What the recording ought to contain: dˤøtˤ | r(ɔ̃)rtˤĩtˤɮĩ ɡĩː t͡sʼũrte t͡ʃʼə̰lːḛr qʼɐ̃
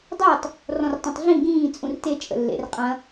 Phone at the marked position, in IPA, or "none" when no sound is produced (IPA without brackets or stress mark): ɔ̃